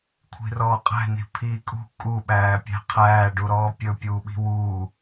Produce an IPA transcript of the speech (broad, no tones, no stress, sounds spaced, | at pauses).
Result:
kʷʰ i̤ r ɔː qʼ æ̤ n i̤ pʰ iː kʼ ṳ kʼ u ɓ æː pʲ æ̤ qʰ æː ɖ u ɾ ɔː pʲ ɵ pʲ uː ɓ i̤ w uː